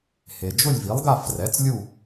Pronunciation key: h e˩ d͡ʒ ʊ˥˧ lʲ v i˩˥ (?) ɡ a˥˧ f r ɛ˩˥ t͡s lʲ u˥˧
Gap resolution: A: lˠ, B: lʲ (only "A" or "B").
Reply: A